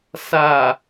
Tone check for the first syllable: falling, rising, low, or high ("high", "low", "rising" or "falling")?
low